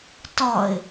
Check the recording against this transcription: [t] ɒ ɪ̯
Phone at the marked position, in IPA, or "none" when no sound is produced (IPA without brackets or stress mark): t